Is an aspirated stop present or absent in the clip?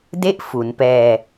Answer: absent